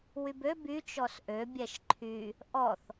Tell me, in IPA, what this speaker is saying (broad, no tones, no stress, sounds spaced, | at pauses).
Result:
w y b ø b y t͡ʃ ɔ s ʔ ø bʲ ɛ ʃ ǃʰ y | ʔ ɔ θ